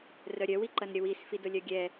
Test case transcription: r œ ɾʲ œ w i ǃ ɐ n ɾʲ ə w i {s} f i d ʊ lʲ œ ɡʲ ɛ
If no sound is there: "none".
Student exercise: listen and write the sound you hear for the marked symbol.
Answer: s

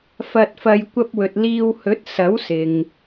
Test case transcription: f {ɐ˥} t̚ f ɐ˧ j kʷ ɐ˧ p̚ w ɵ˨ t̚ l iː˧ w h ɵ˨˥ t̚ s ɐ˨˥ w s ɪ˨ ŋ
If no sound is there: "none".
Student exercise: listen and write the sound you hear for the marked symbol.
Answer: ɐ˧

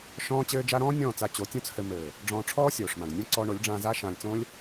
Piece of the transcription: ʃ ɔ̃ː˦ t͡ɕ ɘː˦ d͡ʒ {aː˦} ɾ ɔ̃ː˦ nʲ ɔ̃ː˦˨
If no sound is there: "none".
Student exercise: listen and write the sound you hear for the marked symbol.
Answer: a˦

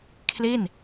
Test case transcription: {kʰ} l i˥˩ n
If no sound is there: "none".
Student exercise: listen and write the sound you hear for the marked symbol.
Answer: kʰ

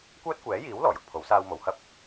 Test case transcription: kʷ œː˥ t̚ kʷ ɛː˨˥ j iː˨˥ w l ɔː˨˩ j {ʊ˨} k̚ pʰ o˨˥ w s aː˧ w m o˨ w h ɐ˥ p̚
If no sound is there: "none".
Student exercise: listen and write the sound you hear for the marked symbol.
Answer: ʊ˨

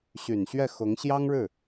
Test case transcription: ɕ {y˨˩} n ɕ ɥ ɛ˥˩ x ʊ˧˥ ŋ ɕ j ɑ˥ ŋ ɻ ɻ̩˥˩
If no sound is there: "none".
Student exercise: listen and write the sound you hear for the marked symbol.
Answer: y˨˩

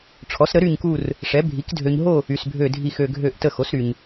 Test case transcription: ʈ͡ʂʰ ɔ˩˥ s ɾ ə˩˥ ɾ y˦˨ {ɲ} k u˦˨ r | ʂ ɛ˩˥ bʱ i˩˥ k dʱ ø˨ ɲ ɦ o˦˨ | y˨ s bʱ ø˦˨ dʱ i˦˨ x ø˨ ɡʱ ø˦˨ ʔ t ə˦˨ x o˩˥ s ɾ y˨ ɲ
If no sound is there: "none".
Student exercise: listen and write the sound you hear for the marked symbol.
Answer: ɲ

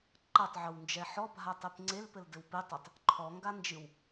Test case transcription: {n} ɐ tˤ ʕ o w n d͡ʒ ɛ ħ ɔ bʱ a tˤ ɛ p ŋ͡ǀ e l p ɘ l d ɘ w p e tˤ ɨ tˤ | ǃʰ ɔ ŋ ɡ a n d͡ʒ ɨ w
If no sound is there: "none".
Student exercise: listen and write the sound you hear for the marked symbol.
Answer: ǃ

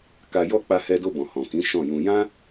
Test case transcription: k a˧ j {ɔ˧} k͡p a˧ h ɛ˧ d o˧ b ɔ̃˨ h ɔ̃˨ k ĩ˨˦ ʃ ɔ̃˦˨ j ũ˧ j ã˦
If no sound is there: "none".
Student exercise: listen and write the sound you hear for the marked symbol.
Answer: ɔ˦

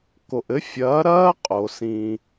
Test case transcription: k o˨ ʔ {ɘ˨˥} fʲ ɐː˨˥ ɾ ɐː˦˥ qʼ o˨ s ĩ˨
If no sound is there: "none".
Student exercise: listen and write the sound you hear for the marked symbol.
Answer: ɘ˨˥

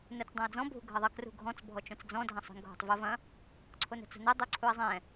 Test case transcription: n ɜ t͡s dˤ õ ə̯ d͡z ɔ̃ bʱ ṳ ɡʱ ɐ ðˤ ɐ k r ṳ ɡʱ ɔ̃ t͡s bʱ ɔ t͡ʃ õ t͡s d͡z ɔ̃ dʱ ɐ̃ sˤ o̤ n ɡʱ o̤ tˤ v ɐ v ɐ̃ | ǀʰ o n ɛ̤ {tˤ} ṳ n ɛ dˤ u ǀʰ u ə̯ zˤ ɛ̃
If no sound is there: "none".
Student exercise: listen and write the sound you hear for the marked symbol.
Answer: t͡s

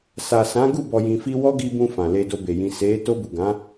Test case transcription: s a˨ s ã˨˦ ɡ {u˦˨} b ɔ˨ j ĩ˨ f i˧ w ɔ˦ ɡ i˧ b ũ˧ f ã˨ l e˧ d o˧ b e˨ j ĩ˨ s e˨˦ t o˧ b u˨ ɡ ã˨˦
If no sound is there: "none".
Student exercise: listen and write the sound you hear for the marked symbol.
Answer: u˦˨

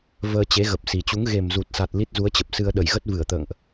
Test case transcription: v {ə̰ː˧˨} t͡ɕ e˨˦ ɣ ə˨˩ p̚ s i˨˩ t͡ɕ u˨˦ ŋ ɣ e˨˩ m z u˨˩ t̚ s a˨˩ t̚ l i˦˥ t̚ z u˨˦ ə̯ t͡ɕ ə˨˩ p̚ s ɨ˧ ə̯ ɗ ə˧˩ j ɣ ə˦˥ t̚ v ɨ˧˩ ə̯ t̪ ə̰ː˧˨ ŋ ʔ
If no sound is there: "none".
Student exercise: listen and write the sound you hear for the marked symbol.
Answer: əː˧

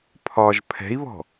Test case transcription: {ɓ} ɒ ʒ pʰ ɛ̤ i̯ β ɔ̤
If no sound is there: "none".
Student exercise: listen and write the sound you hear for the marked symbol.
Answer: pʰ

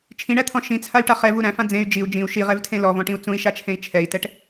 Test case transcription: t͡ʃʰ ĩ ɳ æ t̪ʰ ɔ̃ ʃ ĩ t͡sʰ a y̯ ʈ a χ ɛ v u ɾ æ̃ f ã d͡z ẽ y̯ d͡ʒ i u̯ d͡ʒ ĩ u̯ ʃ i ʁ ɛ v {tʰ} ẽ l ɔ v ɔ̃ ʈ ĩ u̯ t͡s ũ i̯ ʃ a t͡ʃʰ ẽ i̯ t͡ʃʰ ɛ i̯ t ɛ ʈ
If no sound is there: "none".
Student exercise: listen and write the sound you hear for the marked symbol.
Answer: tʰ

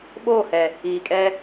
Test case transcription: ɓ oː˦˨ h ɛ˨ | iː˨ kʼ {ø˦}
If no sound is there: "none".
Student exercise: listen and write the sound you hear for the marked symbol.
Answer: ɛ˦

